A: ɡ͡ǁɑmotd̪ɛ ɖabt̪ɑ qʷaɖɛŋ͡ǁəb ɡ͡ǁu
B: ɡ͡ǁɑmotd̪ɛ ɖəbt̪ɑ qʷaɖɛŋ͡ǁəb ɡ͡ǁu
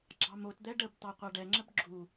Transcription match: B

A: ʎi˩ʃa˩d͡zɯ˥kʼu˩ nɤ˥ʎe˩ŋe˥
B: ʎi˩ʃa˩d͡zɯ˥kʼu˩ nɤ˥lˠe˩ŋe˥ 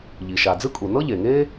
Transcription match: A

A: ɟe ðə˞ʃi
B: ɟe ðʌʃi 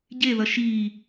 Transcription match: B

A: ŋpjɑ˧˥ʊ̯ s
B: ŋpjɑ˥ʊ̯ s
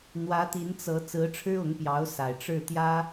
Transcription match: A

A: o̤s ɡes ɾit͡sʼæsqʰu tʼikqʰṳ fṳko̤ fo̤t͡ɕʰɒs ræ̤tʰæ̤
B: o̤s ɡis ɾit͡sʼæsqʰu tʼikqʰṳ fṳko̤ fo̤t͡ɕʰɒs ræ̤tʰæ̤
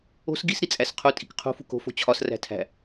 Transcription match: B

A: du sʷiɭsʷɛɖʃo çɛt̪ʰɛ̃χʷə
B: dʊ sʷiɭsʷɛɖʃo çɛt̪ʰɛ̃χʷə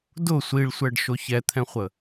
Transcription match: B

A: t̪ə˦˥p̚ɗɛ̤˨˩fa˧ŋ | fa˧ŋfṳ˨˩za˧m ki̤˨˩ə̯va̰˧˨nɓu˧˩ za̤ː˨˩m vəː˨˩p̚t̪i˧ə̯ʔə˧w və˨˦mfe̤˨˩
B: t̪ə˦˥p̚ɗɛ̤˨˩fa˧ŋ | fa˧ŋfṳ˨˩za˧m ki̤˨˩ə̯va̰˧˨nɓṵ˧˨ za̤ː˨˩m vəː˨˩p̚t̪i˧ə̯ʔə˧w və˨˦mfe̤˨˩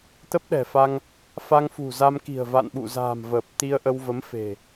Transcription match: B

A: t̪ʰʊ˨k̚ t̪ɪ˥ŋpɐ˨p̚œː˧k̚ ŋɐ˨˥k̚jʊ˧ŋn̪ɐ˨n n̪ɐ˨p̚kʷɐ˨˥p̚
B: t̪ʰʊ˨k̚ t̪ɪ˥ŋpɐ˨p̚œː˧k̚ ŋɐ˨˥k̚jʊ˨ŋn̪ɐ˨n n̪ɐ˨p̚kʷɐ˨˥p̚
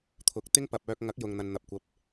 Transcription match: B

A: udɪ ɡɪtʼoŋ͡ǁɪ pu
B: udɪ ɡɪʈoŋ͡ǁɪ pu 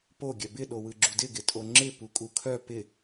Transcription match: A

